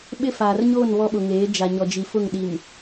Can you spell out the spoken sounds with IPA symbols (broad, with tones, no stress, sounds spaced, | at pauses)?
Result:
ɓ ɪ˦ f aː˨ r ɲ oː˦˨ n β ɔ˦ ɓ ʊ˨ ŋ eː˨˦ d͡ʒ a˨ ɲ ɔ˨ d͡ʒ i˨ f ʊ˦˨ ŋ ɗ i˨ m